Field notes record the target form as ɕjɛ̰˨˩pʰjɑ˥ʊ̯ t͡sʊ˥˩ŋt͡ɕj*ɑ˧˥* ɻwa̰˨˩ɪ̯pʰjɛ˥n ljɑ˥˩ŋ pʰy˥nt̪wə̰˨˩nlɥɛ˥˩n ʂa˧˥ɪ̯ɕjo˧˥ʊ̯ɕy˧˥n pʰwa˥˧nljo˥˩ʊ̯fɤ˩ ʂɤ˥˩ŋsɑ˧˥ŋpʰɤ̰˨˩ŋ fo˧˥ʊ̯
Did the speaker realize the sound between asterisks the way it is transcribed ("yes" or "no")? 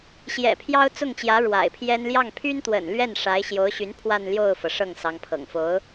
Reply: no